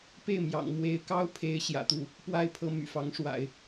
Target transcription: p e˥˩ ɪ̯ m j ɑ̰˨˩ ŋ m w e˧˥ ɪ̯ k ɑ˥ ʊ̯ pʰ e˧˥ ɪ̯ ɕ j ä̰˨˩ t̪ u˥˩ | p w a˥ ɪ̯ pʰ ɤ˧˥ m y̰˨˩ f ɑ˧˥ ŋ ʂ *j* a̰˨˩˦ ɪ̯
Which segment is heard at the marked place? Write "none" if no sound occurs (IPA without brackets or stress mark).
w